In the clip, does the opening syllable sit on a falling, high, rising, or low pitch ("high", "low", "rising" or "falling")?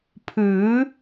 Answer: rising